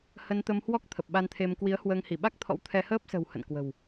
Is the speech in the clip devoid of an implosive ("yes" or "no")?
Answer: no